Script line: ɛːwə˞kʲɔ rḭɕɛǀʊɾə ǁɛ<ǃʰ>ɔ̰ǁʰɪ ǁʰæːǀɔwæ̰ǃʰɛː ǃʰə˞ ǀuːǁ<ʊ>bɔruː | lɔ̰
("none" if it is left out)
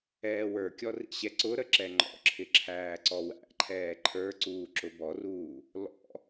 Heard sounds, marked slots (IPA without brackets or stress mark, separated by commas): ŋ͡ǃ, ʊ